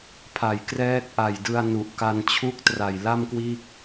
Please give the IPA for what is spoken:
pʰ a˨˩ j k r ɛː˦˥ k̚ ʔ a˨˩ j d ɯ˧ a̯ n u˨˩ ʔ k a˧ n t͡ɕʰ u˥˩ k̚ t r a˨˩ j l a˥˩ m k w iː˥˩ k̚

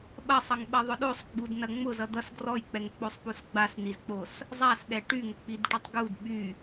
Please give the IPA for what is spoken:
ɓ ɐ sˤ ʌ ŋ ɓ ɐ ðˤ ʊ ɗ o sˤ ɡ͡b u d n ɐ ŋ͡m ʊ z ʌ d̪ ʌ s ɡ r ɔ j k͡p ɛ ŋ k͡p o sˤ p u s ɡ͡b a s n i z k͡p o s | zˤ a s ɗ ɛ ʈ y ŋ ʊ k͡p i d ʈ y tˤ ɡ u d ɓ y

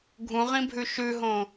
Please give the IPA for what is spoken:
ɡʱ ũ ʁ ĩ bʱ ʉ ʃ ʉ ɦ õ

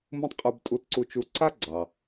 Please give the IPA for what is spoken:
m ũ˧ tˤ qʼ u˧ b tʼ u˧ t ǀ u˧ t͡ʃ u˧ ǀ a˥ ɡ͡ǀ ɑ˩

